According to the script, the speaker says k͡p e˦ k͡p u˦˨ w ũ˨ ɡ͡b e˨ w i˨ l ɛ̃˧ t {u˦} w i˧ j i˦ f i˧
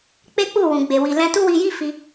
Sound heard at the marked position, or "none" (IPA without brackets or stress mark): u˦